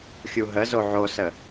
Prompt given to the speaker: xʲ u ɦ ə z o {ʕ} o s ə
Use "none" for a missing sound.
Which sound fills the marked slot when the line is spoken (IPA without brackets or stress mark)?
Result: ʕ